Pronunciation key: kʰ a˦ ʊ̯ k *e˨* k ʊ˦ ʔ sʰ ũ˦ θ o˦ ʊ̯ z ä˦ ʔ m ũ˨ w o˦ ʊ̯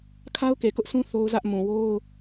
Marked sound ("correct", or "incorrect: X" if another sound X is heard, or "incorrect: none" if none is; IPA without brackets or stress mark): correct